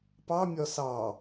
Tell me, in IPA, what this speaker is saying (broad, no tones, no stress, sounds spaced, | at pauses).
p ɑ mʲ ɒ s ɑ